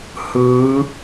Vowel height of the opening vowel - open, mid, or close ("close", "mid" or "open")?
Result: close